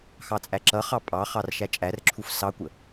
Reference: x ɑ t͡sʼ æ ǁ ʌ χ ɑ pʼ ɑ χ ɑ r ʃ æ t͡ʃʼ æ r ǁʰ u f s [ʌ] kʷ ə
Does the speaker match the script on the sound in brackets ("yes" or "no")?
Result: no